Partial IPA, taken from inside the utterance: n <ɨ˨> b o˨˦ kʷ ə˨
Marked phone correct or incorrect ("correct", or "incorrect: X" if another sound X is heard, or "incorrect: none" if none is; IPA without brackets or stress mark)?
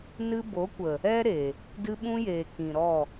incorrect: ɨ˦